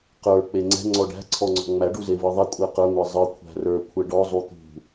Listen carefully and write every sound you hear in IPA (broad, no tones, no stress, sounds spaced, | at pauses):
q ə˞ k͡p e ŋ͡ǀ ɛ̤ ŋ͡ǀ ɔ ɖ æ̤ ǀʰ ɔ ŋ͡ǀ ɔ̤ ŋ͡m æ ɖ u z e v ɯ ðˤ ɛ kʷʼ æ q ə˞ ŋʷ ɛ zˤ ɯ kʷʰ æ̤ r ə˞ kʷʰ ɛ ɖ ɔ zˤ u t̪ ṳ